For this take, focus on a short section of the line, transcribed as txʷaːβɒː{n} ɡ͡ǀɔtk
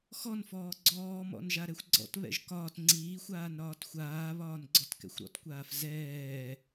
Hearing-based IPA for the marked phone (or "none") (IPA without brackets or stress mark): n